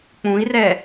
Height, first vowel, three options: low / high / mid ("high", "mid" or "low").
high